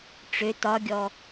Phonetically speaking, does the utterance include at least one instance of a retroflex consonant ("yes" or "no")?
yes